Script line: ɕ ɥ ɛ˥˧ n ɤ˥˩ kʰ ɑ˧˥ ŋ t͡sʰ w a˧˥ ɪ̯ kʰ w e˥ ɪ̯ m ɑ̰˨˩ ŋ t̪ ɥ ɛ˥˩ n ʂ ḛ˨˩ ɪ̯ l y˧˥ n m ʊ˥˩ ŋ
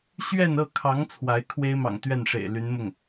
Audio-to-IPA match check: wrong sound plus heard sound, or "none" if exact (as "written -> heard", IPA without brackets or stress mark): none